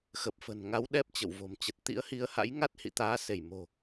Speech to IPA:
x ə˨˩ p̚ f ə̤˨˩ n ŋ a˨˦ w ɗ ɛ˦˥ p̚ t͡ɕ ə̰˧˨ w v o̤˨˩ m t͡ɕ ə˨˩ t̚ t̪ ḭ˧˥ ə̯ h i˨˦ ə̯ h a̰˧˥ j ŋ a˦˥ t̚ h ḭ˧˨ t̪ aː˨˦ s e˧˩ j m o̤˨˩

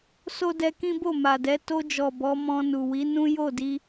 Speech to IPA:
s o˦ d ɛ˧ k ĩ˦ b o˦˨ m a˨ d ɛ˨˦ t o˧ d͡ʒ ɔ˨ b ɔ˨˦ m ɔ̃˧ n u˨ w i˨˦ n ũ˦ j o˦˨ d i˧

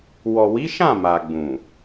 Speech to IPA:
w ɔ˨ w i˨˦ ʃ ã˦˨ m a˨ ɡ͡b ũ˨

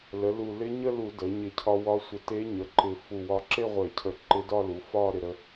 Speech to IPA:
l ə˩˥ l u˧˩ l ɪ˧˥ ɲ ə˥˧ l u˧˩˧ d ə˩˥ ɲ ɪ˧˩˧ cʰ ɒ˧ w ɒ˧˥ sʷ ə˧˩˧ t e˧˥ ɲ ə˩˥ ǃ ɪ˧˩ f u˧˩ w ɒ˧ ǁ e˥˧ ʁʷ e˧˩˧ cʰ ə˧˩ ǃ ɪ˧˥ d ɒ˥˧ l u˩˥ f ɒ˥˧ ɾ ɪ˧ ɾ ə˧

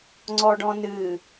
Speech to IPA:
ŋ͡ǀ ɔ ɖ ɔ̃ n ɨ

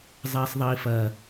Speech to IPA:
zˤ ɛː sˤ ðˤ iː f ɐː

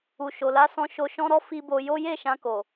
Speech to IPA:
u˨ ʃ o˨ l a˧ s ɔ̃˧ ʃ o˧ ʃ ɔ̃˦ ɾ ɔ˦ f i˧ b o˧ j o˦ j e˦˨ ʃ ã˧ k o˨

